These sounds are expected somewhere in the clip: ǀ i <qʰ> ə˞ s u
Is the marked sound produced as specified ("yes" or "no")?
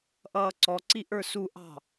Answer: no